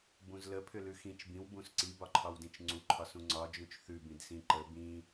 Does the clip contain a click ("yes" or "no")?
yes